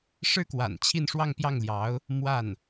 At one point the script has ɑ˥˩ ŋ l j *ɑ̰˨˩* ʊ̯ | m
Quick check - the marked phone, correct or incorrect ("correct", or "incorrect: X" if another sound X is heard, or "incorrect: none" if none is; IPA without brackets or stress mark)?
incorrect: ɑ˧˥